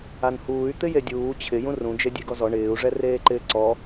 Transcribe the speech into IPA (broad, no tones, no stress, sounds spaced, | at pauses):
a n h uː y̯ t̪ ɪ j e dʲ uː t͡ɕʰ ɪ j ũ r ũ d͡ʒ e dʲ e ɡ ɔ z ɔ ɳ ɪː u̯ ʐ ɛ r eː ǃ ɪː ǀ ɔ